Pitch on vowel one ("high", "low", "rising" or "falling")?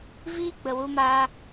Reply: high